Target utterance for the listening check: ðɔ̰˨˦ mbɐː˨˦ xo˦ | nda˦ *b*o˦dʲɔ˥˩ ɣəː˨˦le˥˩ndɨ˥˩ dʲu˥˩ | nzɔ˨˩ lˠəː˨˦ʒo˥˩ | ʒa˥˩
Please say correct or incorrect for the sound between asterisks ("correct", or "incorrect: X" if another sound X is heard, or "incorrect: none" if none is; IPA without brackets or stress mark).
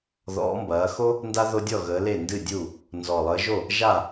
incorrect: ð